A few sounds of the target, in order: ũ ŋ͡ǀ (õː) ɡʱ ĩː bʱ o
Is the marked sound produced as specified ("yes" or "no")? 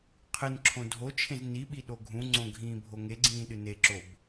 no